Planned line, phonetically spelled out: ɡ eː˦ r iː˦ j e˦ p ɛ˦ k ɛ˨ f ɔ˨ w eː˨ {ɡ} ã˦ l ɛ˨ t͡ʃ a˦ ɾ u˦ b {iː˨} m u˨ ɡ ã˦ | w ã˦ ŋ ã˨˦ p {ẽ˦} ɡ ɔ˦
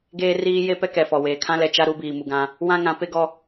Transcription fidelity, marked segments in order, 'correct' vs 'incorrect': incorrect: kʰ, correct, incorrect: e˦

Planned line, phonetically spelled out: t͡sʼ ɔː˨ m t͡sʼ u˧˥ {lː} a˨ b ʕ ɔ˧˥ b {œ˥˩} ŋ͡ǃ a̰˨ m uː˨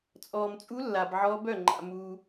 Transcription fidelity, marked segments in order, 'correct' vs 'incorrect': correct, correct

